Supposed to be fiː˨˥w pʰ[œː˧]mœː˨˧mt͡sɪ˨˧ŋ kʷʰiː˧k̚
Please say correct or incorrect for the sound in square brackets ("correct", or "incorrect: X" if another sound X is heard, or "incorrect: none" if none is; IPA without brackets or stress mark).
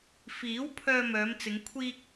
correct